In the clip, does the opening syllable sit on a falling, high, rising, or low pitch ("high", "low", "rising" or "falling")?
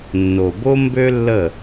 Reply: low